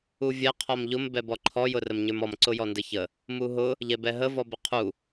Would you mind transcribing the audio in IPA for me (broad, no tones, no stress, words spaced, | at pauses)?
uvʲɛ qʰɔmʎʊm bɛbɔǃʰɔ jʊrəmɲə˞mɔm ǀʊjɔndəçə | muɦʊ | ʎɛbɛɦə vɔbəqʰu